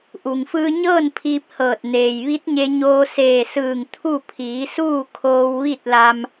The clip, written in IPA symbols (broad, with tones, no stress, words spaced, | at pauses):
ʔu˩ŋfɯː˧ɲɤː˥˨n pʰiː˧p̚hɤː˧˩t̚ neː˩jʋi˧˥t̚ɲe˧ɲoː˧ seː˧˩sɯː˧˩ŋ t̪ʰu˥˨ pʰiː˩˧ suː˥˨kʰoː˧w ʋi˥˨t̚la˧m